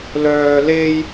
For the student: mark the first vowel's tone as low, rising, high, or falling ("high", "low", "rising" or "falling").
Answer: high